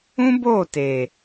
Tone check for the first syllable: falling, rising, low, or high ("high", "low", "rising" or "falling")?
high